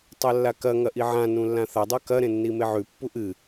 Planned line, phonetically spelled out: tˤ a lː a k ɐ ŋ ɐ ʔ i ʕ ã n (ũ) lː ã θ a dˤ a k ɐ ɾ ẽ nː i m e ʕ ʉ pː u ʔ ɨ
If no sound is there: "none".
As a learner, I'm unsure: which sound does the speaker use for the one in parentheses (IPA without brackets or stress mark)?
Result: ũ